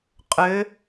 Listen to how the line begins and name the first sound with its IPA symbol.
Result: qʼ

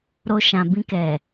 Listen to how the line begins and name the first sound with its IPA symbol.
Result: ɾ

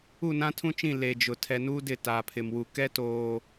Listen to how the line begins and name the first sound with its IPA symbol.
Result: u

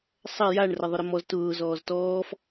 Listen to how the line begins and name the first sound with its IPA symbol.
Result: sˤ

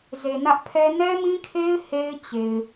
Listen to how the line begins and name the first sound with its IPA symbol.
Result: z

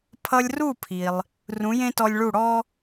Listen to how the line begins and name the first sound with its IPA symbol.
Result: pʰ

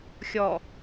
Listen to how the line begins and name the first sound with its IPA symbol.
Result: xʲ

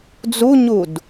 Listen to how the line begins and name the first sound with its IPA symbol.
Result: d͡z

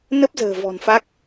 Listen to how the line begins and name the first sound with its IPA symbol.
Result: n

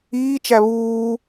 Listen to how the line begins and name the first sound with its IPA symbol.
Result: iː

